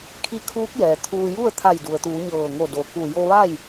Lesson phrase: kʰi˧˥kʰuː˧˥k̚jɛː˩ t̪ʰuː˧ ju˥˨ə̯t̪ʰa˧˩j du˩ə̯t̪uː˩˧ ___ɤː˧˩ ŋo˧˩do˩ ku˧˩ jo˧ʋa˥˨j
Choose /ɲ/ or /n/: ɲ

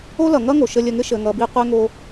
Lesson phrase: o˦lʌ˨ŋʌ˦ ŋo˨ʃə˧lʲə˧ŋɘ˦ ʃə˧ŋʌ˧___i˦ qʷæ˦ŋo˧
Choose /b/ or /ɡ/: b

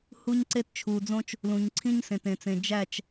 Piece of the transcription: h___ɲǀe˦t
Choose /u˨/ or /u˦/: u˦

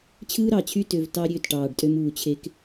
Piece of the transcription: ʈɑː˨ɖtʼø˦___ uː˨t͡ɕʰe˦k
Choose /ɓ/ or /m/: m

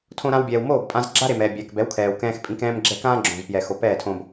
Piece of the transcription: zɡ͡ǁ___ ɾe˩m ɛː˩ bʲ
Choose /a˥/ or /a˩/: a˥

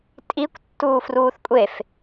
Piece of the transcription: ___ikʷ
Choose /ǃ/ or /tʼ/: tʼ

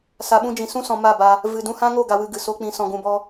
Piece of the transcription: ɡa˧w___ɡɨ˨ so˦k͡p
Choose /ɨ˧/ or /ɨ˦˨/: ɨ˧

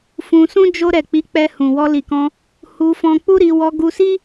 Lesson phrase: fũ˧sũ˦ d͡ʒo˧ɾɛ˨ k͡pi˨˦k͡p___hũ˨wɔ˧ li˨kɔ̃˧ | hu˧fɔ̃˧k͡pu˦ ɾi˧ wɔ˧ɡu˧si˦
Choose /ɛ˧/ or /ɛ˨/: ɛ˧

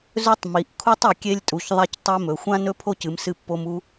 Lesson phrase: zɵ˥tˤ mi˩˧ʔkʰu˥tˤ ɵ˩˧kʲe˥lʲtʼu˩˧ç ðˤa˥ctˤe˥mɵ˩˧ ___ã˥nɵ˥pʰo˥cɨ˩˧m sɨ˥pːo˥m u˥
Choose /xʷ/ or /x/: xʷ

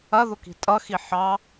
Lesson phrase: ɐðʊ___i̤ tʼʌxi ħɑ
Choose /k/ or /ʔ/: k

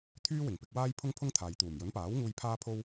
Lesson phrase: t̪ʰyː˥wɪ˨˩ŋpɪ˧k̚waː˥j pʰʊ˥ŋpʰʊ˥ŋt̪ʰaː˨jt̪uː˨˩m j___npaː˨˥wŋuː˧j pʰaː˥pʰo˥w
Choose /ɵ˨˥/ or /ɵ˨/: ɵ˨˥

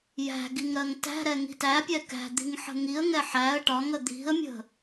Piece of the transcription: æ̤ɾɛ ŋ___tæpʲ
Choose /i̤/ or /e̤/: i̤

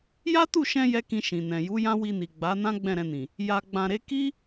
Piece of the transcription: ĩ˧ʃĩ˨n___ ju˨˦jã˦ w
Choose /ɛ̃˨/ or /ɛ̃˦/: ɛ̃˨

